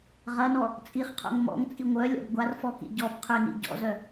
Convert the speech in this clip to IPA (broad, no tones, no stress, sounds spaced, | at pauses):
ʁ ɐ n ɔ | t͡sʼ i χ qʰ o̰ ŋ m ɔ̰ ŋ t͡sʼ i ŋʷ œ lʲ ɔ̰ b ɡʷ a r f ɔ k ḭ ɟ ɔ b qʰ ʏ n ḭ ɟ ɔ̰ z œ